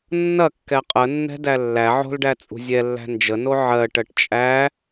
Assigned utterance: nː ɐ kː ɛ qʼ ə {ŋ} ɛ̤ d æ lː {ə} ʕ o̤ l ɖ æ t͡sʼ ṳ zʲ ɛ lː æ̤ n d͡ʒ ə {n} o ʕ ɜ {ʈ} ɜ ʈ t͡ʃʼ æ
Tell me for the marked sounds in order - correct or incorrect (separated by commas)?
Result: incorrect, incorrect, correct, correct